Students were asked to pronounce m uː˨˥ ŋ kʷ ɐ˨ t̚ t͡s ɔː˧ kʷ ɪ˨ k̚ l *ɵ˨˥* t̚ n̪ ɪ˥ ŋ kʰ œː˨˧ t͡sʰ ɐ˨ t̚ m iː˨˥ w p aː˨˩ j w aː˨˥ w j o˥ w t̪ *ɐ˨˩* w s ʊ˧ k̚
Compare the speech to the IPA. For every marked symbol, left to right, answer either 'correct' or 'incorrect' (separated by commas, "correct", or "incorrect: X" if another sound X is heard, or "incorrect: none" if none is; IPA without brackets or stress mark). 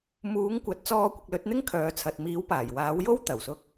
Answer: correct, correct